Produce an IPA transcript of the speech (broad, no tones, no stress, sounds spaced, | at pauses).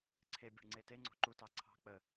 ǀʰ e bʲ e̤ ɳ ŋ͡ǀ e t e ŋ͡ǀ o̤ ǃ u t ɑ ǀʰ ɑ̤ k͡p ə